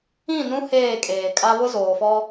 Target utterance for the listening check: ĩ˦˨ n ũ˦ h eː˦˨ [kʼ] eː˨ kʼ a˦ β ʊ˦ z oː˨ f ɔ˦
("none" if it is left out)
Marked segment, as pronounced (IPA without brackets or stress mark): kʼ